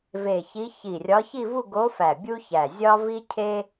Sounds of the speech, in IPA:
ve˧˩çi˧˥ çi˧˩rʲɒ˧˥ çi˥˧vu˥˧ɡo˧˥fæ˧˩ bʲu˥çæ˧˩ zʲɒ˥vi˥cʰe˥

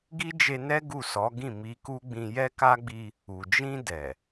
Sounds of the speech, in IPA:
ɡi˦d͡ʒe˧nɛ˦ ɡu˦˨sɔ˨˦ ɡĩ˦˨mi˧ku˦ɡ͡bĩ˧ jɛ˦ka˦ɡ͡bi˦ | u˨d͡ʒĩ˧dɛ˨

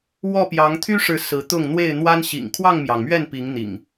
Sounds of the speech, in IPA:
wɔ˥˨pjɑ˨˦ŋ t̪ʰy˦ʂɻ̩˨˦ sɹ̩˨˦t̪ʊ˥˨ŋ n̪we˥˨ɪ̯n̪wa˦n ɕḭ˨˩ŋ kʰwɑ˥˨ŋmjɑ˩ŋmɥɛ˥˨n pi˨˦ŋn̪ḭ˨˩ŋ

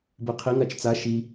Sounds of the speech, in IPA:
beqʰi ŋat͡ʃt͡sa ʃi

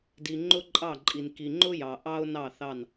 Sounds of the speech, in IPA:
di˨ ŋ͡ǃʊ˦ǃʼɑ˦˨ǃʼi˨n ki˨ŋ͡ǃʊ˦jɑ˨ ʔɑ˦ʊ̯nɑ˦˨ θɑ˦˨n

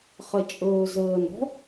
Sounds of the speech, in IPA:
χɛt͡ʃʼɵːzəːnɔ̤

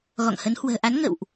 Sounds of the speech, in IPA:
ɣɔ̰˧˨ŋhə˨˦n hwə̤ː˨˩ʔa˨˦n ŋə̰˧˨wʔ

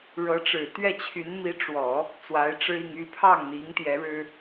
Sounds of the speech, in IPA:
ɻɤ˧˥ʈ͡ʂɻ̩˨˩ t̪ɥɛ˥˩t͡ɕʰy˧˥n mi˧˥ʈ͡ʂwɔ˨˩˦ | t͡swa˧˥ɪ̯ʈ͡ʂɻ̩˥i˥˧ŋ y˥˧pʰɑ˥˩ŋn̪i˧˥ŋ t̪jɛ˧˥ɻɻ̩˥

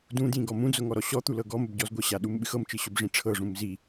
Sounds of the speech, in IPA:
dũdjĩ ɡɔmũd͡zʊ ŋɔɾɔɕɔt̪u lɤɡɔməb ɟɔzɡʷəɕa ɗumɓɨxɤmt͡ʃɨ ɕʊbʐĩʈ͡ʂʰɤʐũm zi

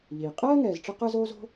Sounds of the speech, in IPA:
ʎiː˩ qʼɜː˥ŋɛː˨zʈ͡ʂə˦ qəː˥zoː˥zo̤˥

